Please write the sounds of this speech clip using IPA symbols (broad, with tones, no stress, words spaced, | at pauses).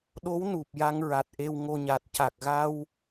ɗo˧˥w nu˨˩p̚ ja˧ŋɹa˨˩t̚ ʔe˧wŋo˧ɲa˨˩t̚ ca˨˩k̚ɣa˧w